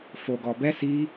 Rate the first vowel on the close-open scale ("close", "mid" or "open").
mid